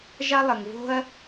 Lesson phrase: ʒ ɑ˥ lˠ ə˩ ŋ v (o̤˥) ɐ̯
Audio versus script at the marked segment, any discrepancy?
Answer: no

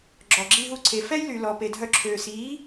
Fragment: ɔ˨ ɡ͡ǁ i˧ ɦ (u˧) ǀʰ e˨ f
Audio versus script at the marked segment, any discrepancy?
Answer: no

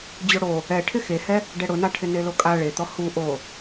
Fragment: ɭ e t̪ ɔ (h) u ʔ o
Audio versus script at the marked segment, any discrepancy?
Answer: no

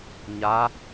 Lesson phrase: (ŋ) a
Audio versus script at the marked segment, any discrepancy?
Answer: yes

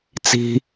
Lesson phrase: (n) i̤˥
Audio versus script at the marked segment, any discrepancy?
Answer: yes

